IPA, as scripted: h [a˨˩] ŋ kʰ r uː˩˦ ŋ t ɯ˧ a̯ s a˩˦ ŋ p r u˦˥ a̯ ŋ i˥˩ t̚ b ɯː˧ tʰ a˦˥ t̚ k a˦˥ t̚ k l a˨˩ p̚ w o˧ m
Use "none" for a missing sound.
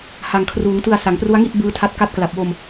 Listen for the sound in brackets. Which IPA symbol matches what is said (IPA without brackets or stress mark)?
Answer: a˨˩